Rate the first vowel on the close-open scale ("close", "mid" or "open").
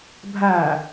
open